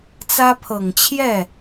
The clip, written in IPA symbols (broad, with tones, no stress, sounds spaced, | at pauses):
t͡s ä˥ pʰ ɤ˨˩ ŋ t͡ɕʰ j ɛ˥˩